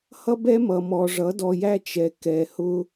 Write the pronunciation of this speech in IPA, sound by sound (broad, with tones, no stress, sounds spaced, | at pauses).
h ʌ˦ b ɛ˦ m ʌ˨ m ɔ˨ ʐ ʌ˨˦ d ɔ˨ j æ˦ t͡ʃ ɛ˨ k ɛ˨ h ʊ˦